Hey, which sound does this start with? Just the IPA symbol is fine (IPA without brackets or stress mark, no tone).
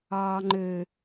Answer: ɑ